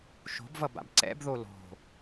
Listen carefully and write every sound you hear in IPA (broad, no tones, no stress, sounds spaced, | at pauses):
ʃ o̤ b v ʌ b a̰ b ǀ ɛ̰ b ð o l o̤